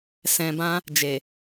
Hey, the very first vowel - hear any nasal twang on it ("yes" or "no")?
yes